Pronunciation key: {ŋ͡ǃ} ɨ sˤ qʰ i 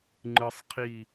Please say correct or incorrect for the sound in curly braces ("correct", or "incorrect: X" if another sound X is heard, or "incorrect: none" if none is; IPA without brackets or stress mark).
correct